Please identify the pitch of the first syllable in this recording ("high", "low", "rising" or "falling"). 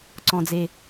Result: low